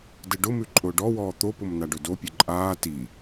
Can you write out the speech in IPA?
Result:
d ɘ ɖ ʊ m ʉ ǃʼ ʊː ɖ ɔ w ɔː t̪ o p ʊ m n a ɖ ɵ d o pʲ ɘ ǃʼ aː t i

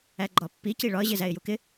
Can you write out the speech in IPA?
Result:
æ ɡ͡ǃ ɒ pː i c i ɭ ɒ ə̯ ʑ ɪ z æ ɪ̯ j u k ɪ

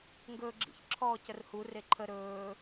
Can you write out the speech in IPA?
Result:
ŋ ɡ ɵː ɡ͡ǁ ḭ ç ǁʰ ɔː c ə r h u r e ǃʰ ə ɾ ɵː

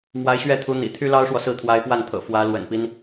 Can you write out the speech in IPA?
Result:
m w a˧˥ ɪ̯ ɕ ɥ ɛ˥˩ t̪ʰ u˧˥ n̪ ḭ˨˩ t̪ʰ y˥ l ɑ˥ ʊ̯ ʂ w ɔ˨ s ɹ̩˥˩ t̪ʰ w a˧˥ ɪ̯ p w a˥˩ n t̪ʰ ɤ̰˨˩ f w ä˧˥ l w ə̰˨˩ n p i˦ n

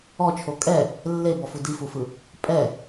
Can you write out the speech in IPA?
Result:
ɔ t͡ʃʰ o kʼ ɛ | lː e b ɔ f u d i f u f ɯ | pʼ ɛ

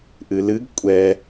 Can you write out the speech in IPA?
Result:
ʔ ɨ l ɨ ɡ kʷʼ ɛ

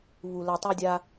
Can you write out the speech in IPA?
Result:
β u˨ l ɜ˨ tˤ e˧ dʲ a˧

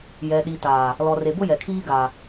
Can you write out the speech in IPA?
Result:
j ɛ˨ ɗ i˨ t aː˨ | l ɔ˨ r e˨ b ʊ˦ j ɛ˨ kʰ iː˦ ɡ aː˨

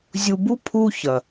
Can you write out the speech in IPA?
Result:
zʲ u˨ b u˦ pʰ u˦ ç ɐ˨

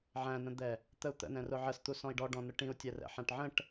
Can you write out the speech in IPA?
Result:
ʕ æ̃ n ə̃ d̪ ɛ | t̪ ə u̯ t̪ ə̰ n ɛ̃ r ʊ ʕ ə s t̪ u s ɔ̃ i̯ ɖ ɔ ɖ ɔ̃ n ʊ ʈ ĩ u̯ tʲ ɛ r ɛ̰ ħ æ̃ ʈ ʕ ə̃ ʈ

